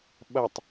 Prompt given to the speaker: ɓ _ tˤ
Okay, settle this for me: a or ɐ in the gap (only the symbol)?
ɐ